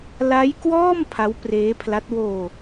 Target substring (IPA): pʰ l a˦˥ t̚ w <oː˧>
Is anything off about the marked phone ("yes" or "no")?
no